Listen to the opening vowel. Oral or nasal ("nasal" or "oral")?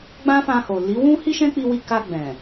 nasal